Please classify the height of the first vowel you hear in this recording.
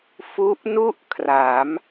high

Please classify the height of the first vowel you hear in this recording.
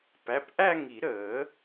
low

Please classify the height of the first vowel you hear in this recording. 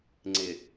high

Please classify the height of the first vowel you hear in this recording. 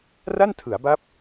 low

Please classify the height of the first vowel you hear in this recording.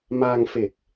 low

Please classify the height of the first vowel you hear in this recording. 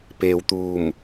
mid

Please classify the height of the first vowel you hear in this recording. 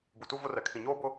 high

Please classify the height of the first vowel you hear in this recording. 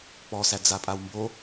mid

